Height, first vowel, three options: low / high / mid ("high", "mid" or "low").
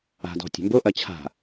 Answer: low